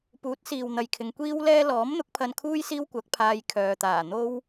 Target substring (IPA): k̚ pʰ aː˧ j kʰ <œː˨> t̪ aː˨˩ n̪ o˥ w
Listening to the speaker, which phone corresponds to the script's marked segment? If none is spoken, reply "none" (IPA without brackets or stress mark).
œː˨